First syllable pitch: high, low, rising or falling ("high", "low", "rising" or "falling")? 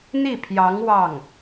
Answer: falling